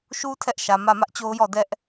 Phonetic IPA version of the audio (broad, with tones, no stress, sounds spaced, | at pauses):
ʃ u˦ tʰ ɛ˦ ʔ ʃ ä˨ m ä˦˨ m ä˦ ʔ t͡ɕ o˦ ʊ̯ j ɔ˦˨ d ɛ˦ ʔ